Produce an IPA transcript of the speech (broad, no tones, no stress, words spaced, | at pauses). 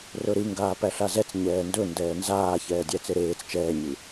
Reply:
rɵɾɨŋɡaː pæɬazɛt͡s ɲɛːndɵ ndɛːnzaː çɛːdʲæt͡seɾeːt͡s t͡ʃɛːɲɨ